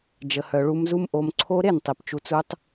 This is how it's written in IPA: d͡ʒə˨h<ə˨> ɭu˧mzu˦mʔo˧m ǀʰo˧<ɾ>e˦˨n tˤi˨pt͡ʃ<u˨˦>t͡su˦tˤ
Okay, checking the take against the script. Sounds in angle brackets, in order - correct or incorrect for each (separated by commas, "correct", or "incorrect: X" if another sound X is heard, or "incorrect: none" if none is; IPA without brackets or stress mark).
incorrect: œ˨, correct, incorrect: u˧